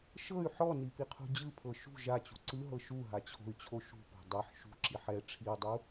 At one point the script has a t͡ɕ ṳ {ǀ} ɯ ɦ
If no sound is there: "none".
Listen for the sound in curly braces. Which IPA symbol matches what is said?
ǀ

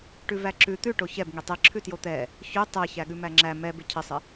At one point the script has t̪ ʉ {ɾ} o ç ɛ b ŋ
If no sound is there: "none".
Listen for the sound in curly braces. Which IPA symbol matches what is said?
ʈ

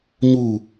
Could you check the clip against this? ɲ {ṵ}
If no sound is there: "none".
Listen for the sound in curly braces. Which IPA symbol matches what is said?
u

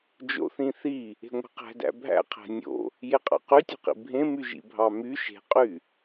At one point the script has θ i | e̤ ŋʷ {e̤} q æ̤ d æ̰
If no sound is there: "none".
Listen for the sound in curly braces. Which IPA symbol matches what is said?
e̤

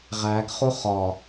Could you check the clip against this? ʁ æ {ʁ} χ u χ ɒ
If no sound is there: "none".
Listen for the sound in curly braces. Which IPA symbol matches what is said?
ɡ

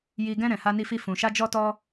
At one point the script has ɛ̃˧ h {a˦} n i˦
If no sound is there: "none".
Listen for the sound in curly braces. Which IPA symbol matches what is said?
a˦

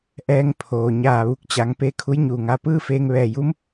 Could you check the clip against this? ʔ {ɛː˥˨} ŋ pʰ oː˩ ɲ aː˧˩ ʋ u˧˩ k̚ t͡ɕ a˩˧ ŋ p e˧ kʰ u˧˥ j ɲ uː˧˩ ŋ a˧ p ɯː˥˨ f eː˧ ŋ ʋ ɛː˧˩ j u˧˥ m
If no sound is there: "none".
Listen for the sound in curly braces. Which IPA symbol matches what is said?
ɛː˧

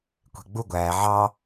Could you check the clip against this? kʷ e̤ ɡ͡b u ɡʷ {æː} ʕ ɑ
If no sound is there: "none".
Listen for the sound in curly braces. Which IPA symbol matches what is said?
æː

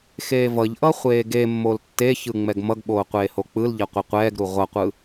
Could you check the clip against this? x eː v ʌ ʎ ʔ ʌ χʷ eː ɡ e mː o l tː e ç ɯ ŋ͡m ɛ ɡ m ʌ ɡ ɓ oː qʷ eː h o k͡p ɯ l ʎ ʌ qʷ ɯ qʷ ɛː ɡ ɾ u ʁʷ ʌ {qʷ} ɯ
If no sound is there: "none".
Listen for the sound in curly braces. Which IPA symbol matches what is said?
qʷ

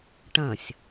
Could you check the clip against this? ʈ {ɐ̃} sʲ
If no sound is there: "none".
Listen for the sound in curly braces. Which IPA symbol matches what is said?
ɐ̃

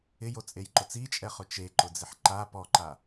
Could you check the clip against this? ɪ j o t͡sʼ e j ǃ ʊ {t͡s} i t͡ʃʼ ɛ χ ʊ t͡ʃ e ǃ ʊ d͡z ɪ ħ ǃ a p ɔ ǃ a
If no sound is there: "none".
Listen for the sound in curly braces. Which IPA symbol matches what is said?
t͡s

